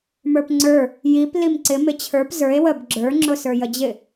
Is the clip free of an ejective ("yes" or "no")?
yes